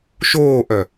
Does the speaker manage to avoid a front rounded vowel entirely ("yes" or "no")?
no